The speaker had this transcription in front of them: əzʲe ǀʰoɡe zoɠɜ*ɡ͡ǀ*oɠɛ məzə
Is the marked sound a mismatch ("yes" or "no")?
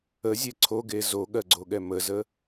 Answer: no